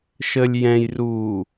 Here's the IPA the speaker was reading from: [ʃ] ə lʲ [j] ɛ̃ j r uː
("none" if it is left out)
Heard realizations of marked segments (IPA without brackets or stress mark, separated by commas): ʃ, j